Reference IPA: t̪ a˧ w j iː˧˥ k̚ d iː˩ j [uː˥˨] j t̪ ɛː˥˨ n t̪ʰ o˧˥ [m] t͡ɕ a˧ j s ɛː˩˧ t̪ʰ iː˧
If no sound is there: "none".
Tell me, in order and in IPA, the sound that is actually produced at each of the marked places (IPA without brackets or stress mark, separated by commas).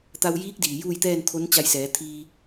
uː˥˨, n